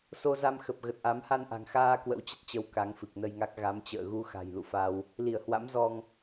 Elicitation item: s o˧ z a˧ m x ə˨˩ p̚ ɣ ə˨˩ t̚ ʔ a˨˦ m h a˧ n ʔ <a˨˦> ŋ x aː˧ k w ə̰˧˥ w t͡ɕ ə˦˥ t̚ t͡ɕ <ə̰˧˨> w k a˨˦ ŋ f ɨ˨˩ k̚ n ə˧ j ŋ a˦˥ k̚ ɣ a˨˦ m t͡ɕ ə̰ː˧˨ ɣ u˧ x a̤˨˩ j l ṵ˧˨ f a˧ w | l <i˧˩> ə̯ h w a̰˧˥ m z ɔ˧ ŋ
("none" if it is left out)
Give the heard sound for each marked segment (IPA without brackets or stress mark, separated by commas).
a̤˨˩, ə˨˦, i˧˩